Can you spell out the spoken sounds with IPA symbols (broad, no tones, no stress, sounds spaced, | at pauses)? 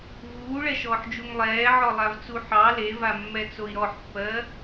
v uː ɭ ɛ ʃ ɔː ħ d͡ʒ u ŋ lˠ ɛː ʕ ɔ lˠ a v t͡s u ħ ɑ l e v a mː ɛ t͡s o i̯ ɾ ɔ ħ pː ɜ